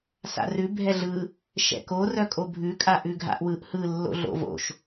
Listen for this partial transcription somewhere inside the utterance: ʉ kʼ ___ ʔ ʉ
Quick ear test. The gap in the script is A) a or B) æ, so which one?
A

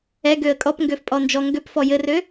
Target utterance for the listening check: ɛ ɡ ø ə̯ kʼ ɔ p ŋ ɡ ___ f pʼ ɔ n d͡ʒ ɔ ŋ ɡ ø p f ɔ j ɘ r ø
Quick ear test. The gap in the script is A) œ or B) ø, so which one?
B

